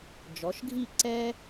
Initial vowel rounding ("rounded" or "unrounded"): rounded